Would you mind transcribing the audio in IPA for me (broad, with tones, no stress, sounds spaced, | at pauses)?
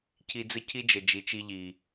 cʰ i˧ d͡z ə˦ cʰ i˦ d͡ʒ ə˨ d͡ʒ i˨ t͡ʃ i˧ ʎ i˨